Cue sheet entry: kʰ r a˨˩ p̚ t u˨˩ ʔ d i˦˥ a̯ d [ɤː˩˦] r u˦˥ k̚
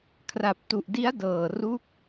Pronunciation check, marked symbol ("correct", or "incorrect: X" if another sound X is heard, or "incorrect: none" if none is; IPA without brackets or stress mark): incorrect: ɤː˨˩